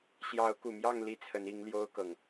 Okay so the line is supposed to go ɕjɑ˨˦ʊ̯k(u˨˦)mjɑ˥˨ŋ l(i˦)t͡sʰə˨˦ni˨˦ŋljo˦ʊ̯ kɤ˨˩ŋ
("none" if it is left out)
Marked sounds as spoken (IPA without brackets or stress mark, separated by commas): u˨˩, i˦